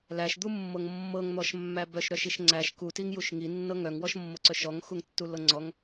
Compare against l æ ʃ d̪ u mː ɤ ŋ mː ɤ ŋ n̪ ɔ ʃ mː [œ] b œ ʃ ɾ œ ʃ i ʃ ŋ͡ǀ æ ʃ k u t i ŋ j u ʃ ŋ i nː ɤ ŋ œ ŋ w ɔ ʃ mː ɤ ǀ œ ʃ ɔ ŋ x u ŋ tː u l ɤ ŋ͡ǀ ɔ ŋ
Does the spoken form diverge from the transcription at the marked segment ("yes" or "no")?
yes